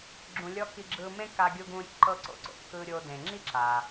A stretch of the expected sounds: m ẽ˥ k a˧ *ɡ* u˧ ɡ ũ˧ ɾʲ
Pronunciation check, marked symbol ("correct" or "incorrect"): incorrect